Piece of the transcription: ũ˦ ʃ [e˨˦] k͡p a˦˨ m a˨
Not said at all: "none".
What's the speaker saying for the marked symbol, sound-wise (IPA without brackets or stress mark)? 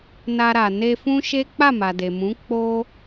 e˦